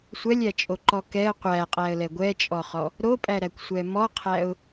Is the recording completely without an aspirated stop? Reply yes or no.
no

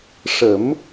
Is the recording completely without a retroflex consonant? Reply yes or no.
no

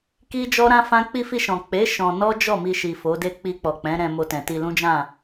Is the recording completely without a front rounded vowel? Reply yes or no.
yes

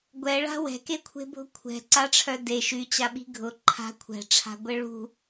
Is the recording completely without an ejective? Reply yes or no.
yes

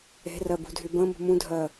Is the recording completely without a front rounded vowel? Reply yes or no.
no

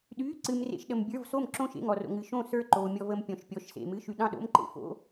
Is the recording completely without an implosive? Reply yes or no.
no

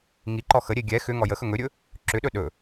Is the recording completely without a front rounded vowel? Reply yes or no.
no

